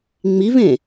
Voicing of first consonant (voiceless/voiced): voiced